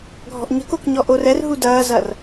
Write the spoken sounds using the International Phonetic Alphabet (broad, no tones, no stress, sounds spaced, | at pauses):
ɡʱ ɔ̤ ʔ ɲ ə̤ k o k ɲ ɔ ʔ o r ɛ r ɦ u d ɐː z ɐ r